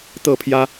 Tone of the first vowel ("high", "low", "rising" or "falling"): falling